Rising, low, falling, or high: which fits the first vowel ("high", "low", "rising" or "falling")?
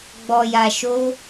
low